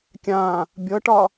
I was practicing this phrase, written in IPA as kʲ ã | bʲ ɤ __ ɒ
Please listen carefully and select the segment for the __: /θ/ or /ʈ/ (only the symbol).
ʈ